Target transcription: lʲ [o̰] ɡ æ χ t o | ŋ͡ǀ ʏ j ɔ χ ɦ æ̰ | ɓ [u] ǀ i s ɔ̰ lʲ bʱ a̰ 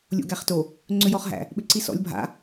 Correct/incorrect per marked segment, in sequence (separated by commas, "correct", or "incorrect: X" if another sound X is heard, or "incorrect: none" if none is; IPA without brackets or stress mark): correct, incorrect: ʏ